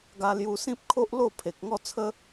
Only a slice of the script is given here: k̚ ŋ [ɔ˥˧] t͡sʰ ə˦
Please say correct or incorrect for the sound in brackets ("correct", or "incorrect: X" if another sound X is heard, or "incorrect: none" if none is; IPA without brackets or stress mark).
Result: correct